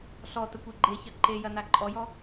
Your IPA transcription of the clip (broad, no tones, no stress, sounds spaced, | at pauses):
ɬ ɔ t ə kʷ e ɡ͡ǃ e ç ɐ ǃ e j ɐ n a ǃʼ ɔ j ɔ